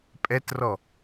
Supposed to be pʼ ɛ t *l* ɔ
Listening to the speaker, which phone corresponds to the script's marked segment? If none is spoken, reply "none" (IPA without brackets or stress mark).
r